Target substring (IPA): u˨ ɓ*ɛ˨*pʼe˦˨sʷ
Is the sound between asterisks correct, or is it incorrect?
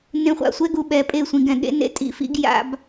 correct